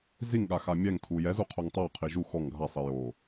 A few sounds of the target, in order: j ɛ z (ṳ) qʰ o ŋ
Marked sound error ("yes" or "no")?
yes